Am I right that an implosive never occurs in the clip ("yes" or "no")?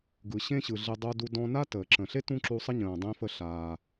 yes